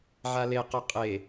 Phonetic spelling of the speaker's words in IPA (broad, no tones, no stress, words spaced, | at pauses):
ʕalequ qʼe